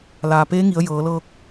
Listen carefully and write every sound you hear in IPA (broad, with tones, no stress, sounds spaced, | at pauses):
l aː˩ p eː˧˥ ŋ i˩˧ ə̯ j ɤː˩˧ l ɤː˧ k̚